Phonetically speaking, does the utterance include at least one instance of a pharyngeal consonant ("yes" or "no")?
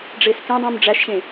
no